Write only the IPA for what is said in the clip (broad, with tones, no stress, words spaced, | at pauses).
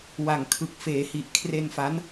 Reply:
wa˨˩ŋkʰɯ˨˩k̚feː˩˦hi˨˩ʔ kʰre˧nfa˦˥n